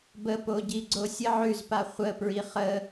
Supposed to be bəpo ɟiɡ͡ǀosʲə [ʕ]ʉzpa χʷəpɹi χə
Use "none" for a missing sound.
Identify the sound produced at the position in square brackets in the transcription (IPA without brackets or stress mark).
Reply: ʕ